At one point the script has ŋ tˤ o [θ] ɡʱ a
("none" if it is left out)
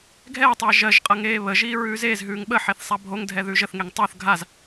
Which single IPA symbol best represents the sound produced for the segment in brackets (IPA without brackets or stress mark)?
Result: θ